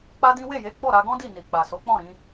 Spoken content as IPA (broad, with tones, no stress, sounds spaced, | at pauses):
k͡p a˦ d ĩ˦ w e˦˨ j e˨˦ ɡ͡b ɔ˦˨ ɾ a˧ ɡ ɔ̃˦ d i˦˨ n i˨ k͡p a˨ s o˨˦ k͡p ɔ̃˦˨ ɾ ĩ˨˦